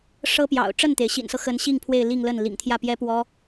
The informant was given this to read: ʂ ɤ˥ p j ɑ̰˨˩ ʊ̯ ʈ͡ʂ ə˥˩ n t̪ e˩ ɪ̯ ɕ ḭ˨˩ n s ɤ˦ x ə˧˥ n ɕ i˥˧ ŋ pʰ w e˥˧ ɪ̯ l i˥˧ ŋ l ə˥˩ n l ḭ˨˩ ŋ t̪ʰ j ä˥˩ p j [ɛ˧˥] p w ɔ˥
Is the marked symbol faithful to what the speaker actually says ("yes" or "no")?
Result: no